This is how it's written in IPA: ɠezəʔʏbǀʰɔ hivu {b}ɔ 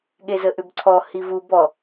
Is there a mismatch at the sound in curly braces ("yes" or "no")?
no